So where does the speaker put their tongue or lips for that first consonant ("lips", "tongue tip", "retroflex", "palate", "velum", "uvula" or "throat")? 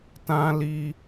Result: tongue tip